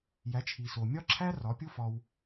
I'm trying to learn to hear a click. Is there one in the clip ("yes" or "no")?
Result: yes